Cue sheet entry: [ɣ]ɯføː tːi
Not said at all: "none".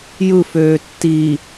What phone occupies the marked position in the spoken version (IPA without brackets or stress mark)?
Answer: j